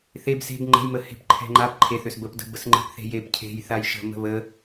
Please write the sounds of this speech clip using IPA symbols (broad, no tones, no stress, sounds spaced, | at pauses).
θ e b s e̤ b ŋ͡ǃ ə̤ j m ə h e̤ p ǃʰ ɛ̤ ŋ͡ǃ a p ǃʰ e θ ʏ s b ə p d ə̤ b ə s ŋ͡ǃ e̤ p θ e̤ j e p cʰ e̤ j θ a j ʃ ə̤ m ə̤ β ə